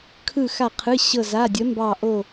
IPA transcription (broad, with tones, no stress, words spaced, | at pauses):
kʰɯ˧˩xa˧˩qʰɯ˩˧˩ ɕɤ˧˩za˩˧˩dʲə˩˥ mbɑ˧˩ʔo˧˩